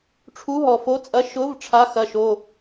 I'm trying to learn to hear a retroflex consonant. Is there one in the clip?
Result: yes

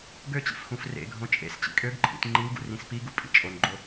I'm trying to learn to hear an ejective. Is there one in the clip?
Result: yes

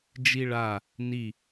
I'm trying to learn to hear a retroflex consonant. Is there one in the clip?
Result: yes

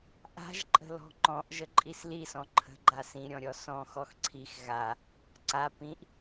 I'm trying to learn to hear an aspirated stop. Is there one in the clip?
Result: yes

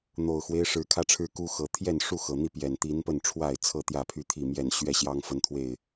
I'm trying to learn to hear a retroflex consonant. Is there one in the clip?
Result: yes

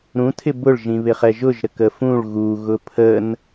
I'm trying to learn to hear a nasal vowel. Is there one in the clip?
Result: yes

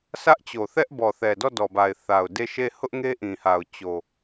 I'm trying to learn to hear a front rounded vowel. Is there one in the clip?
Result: no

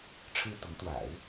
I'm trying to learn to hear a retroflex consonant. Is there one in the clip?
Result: yes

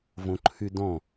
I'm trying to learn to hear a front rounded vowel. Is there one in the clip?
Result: yes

